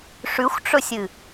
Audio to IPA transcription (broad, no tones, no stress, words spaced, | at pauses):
ʂʉxʷʈ͡ʂɵsʲɨ